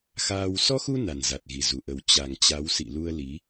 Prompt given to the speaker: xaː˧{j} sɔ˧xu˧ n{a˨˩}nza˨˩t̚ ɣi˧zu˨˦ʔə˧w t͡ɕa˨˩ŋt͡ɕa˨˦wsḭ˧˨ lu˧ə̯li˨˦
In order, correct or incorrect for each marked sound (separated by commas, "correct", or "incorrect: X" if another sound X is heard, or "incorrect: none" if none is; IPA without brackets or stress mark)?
incorrect: w, correct